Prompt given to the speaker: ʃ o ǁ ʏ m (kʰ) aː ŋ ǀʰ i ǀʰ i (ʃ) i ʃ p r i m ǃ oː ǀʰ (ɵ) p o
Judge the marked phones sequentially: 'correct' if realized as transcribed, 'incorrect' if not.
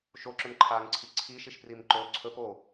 incorrect, correct, correct

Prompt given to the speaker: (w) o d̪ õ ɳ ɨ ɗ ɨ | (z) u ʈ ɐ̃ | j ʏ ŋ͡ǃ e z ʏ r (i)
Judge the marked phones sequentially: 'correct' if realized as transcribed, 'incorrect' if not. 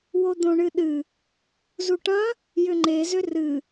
correct, correct, incorrect

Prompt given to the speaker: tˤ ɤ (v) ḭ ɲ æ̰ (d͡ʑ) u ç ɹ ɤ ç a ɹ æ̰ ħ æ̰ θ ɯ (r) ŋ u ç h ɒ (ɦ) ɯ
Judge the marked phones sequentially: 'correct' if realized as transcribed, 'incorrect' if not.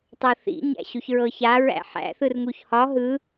incorrect, incorrect, correct, correct

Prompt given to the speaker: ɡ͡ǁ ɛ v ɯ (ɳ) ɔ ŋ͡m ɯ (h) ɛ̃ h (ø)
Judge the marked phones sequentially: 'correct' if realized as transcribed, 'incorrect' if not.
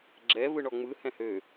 correct, correct, correct

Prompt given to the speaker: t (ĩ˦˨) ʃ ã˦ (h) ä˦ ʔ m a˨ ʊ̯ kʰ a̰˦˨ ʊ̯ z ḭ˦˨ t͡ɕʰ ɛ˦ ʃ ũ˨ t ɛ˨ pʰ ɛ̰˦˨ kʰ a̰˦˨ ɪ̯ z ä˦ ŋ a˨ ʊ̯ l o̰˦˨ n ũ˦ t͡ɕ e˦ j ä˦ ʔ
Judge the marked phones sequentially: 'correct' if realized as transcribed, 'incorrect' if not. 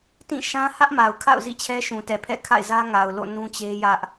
correct, correct

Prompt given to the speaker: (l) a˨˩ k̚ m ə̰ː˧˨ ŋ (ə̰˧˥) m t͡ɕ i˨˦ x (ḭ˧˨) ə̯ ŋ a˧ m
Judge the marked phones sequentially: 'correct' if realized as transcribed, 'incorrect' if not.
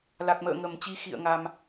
correct, incorrect, correct

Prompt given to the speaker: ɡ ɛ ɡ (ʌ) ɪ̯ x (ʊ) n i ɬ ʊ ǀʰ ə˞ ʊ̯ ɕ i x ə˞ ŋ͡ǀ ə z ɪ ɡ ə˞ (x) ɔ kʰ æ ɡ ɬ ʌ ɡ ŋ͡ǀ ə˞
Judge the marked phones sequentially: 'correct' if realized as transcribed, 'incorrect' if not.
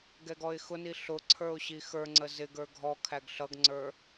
incorrect, correct, incorrect

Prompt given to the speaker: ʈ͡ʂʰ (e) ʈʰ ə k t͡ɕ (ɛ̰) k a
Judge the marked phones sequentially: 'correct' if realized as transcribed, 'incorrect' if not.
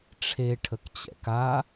correct, correct

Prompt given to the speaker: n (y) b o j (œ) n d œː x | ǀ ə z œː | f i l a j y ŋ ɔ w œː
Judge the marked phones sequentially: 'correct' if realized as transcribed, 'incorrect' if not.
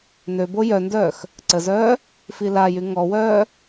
incorrect, correct

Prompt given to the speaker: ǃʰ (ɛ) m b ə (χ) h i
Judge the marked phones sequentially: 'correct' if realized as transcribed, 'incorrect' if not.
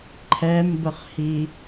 correct, correct

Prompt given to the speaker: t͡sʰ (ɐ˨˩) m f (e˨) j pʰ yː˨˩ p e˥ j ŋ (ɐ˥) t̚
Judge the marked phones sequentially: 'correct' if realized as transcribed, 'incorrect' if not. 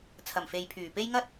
correct, correct, correct

